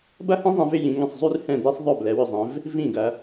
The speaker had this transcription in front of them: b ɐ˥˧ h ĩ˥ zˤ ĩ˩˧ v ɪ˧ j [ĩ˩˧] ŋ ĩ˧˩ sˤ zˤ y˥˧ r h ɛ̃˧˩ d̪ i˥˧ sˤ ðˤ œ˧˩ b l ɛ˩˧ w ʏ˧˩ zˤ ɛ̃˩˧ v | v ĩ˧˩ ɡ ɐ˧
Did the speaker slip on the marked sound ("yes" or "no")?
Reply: no